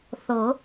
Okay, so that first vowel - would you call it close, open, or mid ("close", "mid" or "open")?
mid